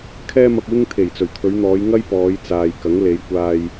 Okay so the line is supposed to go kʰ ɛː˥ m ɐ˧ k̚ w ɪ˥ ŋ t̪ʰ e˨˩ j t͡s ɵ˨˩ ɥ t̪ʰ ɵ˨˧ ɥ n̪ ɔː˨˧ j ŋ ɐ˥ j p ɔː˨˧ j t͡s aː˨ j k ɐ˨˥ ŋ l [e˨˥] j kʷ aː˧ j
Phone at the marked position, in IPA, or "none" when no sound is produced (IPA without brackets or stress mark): e˨˧